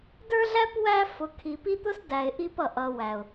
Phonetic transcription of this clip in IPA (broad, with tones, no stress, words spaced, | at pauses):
də˞˦ɮæ˦p wæ˦fʊ˨ kʰi˨pi˦ t̪ʊ˦sdæ˨ɪ̯ ʔi˦pʌ˨ ʔʌ˨ wæ˨ʊ̯